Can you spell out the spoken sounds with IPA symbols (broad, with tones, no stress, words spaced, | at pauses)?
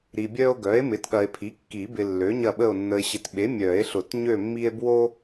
ɾi˨bʲœ˦o̯ ɡœ˩˥e̯mɪ˩˥tɠɐ˨e̯pʰi˩˥ kːi˨˩˦bɪ˨ lːø˩˥ɲɐ˦˨ɓə˦˨o̯ nːə˨e̯ɕɪ˨tɓe˩˥ mʲœ˨˩˦e̯ɬʊ˨˩˦tɲø˦˨mːi˦e̯ bwo˦